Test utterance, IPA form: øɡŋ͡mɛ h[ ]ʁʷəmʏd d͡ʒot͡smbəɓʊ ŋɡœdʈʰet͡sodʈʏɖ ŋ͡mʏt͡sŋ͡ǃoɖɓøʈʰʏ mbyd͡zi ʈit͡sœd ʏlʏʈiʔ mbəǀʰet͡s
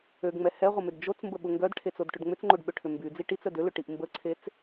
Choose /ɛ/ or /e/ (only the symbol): ɛ